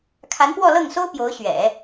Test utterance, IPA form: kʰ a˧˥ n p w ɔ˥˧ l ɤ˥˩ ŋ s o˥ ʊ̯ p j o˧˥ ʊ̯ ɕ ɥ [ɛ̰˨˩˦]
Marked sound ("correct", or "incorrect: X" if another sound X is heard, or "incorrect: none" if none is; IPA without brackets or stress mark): correct